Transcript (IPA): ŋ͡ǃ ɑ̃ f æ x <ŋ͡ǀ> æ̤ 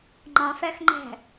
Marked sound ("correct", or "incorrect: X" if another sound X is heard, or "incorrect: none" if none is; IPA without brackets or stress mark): incorrect: ŋ͡ǃ